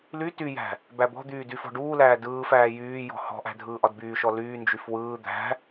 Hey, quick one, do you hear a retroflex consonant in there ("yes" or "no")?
yes